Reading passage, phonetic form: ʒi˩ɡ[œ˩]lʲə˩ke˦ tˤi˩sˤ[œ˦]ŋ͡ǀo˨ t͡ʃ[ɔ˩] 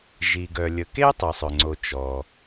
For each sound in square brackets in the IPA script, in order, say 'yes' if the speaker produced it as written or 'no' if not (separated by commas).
yes, no, yes